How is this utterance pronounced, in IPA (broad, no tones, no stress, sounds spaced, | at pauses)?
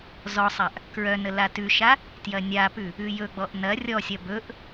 z ɔ sˤ a ʔ | k ɹ œ n ə l a t ʉ ʃ a | t j ɐ nʲ a p ʉ | ʉ j ɵ ɡ͡b ɔ ʔ n ɐ rʲ ɔ sʲ ɐ b ɵ ʔ